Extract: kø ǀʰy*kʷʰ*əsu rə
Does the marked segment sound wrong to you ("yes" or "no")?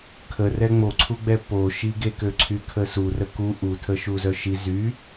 yes